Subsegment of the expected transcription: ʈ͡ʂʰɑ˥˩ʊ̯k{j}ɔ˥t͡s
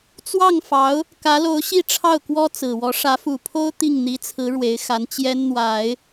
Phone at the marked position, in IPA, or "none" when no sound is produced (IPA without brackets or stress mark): w